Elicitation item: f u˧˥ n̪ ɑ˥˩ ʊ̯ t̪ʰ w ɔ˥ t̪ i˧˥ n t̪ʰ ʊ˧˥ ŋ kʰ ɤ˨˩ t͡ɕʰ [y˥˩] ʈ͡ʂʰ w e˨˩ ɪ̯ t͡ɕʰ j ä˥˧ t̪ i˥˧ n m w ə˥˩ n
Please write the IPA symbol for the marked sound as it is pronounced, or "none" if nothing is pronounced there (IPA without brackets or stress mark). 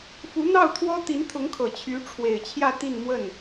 y˧˥